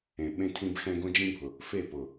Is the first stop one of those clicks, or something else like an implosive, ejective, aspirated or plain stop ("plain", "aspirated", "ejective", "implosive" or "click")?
implosive